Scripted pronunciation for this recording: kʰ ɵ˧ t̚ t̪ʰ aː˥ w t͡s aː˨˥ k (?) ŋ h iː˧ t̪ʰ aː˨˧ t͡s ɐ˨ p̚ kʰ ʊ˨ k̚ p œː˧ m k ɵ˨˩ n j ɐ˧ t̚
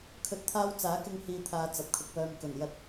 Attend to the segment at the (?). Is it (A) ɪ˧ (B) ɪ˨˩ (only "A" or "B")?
A